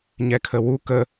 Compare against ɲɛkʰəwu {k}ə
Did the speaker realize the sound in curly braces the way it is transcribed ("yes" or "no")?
yes